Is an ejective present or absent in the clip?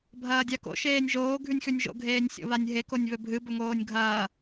absent